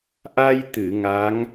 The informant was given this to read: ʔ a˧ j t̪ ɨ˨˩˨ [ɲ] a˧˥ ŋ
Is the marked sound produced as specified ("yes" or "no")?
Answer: no